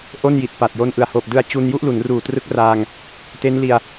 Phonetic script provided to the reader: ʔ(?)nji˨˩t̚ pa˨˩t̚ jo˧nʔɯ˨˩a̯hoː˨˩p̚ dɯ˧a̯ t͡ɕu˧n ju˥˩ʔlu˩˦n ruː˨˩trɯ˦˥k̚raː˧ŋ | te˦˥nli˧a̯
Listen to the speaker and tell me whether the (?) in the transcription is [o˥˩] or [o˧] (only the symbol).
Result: o˥˩